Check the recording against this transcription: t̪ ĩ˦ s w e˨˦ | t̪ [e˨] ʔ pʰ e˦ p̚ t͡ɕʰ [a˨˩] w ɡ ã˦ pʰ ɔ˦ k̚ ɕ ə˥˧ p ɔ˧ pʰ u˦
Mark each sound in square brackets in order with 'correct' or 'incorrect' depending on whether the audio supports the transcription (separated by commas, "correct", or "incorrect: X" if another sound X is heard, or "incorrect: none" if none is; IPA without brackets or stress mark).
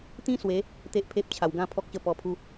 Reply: incorrect: e˦, correct